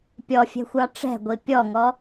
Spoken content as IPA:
pʲ ɔ fʲ ɛ̤ xʷ ɑ ʈ͡ʂ ɛ̤ ɡʷ i pʲ ɔ ŋ ɔ

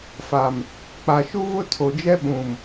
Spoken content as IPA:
f a˨ m | k͡p a˨ ʃ u˦ v ʊ˦ tʰ o˨ d͡ʒ ɛ˦ ɓ ũ˨ m

